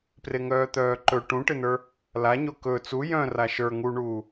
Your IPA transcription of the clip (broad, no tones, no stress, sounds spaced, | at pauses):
p r e ŋ œː t̪ œː ǃ ɵ ʈ ũ ʈ ɪ n ə˞ | l a ɲ o k ɵ t͡s u j œ̃ r a ʃ ə˞ ŋ u ɳ uː